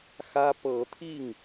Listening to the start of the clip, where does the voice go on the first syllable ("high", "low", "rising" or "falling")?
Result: high